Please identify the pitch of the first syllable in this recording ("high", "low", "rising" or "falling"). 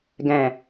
low